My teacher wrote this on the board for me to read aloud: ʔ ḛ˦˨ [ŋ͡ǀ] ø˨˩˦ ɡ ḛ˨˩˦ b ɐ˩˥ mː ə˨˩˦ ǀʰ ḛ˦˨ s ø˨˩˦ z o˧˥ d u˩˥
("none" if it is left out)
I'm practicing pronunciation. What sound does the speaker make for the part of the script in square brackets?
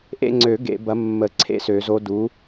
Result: ŋ͡ǀ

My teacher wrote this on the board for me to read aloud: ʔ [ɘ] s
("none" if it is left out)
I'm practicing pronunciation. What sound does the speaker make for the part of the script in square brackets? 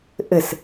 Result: ɘ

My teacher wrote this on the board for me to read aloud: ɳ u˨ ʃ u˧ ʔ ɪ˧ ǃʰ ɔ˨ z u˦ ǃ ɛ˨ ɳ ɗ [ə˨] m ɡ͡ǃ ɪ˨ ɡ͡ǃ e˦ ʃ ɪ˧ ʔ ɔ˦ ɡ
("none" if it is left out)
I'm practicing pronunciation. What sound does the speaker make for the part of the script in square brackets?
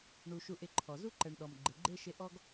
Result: ɔ˨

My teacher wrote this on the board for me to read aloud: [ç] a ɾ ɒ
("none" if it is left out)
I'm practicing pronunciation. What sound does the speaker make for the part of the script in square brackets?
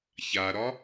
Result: ç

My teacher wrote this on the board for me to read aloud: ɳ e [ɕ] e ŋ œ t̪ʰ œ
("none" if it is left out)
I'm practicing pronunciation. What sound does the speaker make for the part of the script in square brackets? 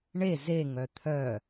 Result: z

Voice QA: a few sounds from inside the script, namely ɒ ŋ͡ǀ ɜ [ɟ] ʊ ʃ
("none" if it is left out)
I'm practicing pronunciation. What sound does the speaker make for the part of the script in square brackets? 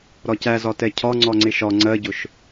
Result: ɟ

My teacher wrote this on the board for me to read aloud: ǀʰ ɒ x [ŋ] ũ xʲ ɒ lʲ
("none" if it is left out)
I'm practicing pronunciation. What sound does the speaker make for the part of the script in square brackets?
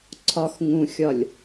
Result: ŋ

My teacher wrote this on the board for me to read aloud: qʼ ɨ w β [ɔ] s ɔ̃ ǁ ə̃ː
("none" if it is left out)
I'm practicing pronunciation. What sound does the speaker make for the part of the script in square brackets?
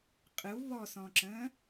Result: ɔ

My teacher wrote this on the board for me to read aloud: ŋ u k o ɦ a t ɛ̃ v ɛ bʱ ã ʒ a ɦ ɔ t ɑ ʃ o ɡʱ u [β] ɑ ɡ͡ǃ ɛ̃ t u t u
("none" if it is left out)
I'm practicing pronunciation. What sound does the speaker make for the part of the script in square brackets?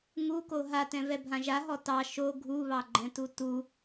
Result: β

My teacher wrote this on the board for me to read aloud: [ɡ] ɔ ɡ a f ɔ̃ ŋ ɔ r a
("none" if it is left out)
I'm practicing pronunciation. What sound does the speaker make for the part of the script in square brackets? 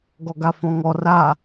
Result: ɡ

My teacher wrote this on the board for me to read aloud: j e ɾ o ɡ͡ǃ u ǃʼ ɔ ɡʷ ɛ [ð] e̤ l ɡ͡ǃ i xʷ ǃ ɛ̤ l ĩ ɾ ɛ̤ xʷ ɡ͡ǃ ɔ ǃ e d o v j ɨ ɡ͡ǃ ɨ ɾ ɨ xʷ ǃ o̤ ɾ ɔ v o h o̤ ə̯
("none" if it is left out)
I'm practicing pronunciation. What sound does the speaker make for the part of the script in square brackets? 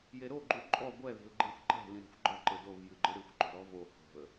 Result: ð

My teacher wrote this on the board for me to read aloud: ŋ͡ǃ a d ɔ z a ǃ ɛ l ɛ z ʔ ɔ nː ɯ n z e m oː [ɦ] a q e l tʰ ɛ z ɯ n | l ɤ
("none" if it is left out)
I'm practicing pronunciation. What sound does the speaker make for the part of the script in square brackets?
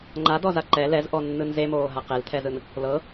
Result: ɦ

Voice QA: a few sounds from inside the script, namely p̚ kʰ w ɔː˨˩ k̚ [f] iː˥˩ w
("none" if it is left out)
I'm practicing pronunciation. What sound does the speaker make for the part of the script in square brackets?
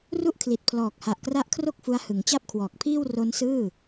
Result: pʰ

